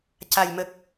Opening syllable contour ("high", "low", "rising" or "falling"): low